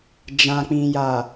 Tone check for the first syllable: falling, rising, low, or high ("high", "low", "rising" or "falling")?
low